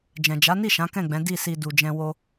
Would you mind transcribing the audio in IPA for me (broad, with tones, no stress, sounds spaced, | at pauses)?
d͡ʒ ɛ̃˨ d͡ʒ a˨˦ n i˦˨ ʃ ã˨˦ k ɛ̃˦˨ ɡ͡b ɛ̃˨˦ d i˦˨ s i˧ d u˨ d͡ʒ ɛ̃˧ w o˧